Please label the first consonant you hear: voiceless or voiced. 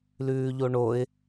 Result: voiced